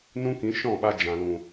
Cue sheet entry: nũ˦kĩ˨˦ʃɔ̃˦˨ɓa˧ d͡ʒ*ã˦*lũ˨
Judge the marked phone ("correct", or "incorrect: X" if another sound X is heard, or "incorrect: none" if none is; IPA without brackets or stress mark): incorrect: ã˨